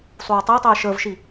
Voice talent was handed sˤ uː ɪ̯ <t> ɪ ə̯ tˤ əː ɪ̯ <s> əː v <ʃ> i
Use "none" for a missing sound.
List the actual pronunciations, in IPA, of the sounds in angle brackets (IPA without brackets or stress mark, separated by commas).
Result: tˤ, ʃ, ʃ